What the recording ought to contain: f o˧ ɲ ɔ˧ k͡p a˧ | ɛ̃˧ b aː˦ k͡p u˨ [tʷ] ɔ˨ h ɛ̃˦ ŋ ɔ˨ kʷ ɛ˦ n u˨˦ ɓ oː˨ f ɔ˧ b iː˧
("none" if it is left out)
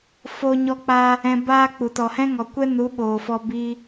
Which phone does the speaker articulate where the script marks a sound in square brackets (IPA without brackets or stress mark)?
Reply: t